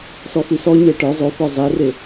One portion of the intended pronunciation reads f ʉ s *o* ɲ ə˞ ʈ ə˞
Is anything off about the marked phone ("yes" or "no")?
yes